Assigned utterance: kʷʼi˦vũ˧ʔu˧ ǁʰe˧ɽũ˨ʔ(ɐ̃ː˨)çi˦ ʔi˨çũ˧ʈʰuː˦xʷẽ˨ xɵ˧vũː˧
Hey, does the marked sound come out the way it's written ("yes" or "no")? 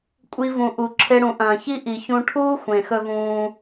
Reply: yes